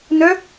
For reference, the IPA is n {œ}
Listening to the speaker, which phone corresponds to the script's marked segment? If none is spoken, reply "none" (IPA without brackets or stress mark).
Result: œ